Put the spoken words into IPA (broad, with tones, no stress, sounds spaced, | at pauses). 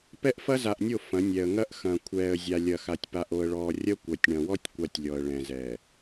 p ɛ˦ ʔ f ɐ˦ z a˨ ʔ nʲ o˦˨ f ɐ̃˨˦ nʲ ɛ˨ ə̯ ŋ ɐ˦ ʔ x ɐ̃˨ kʷʰ ɛː˨ ə̯ zʲ a˨ lʲ ɐ˨ x a˨ tʲ p a˨ ʔ o˨ ə̯ ɭ ɔː˨ rʲ ɐ˦ kʷ ɐ˨ tʲ ɳ ɐ̃˨ w ɔ˦ tʲ kʷ a˦ tʲ lʲ ɔ˨ ə̯ ɭ ɛ̃˨ z ɛː˨